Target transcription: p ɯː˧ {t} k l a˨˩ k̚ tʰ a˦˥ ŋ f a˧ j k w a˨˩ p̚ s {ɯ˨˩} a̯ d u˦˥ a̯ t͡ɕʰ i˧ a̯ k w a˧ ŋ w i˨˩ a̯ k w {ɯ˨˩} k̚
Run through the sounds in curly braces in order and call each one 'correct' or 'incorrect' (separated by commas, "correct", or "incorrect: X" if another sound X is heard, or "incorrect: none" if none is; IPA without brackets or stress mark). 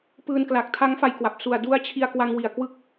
incorrect: n, incorrect: u˨˩, incorrect: ɯ˦˥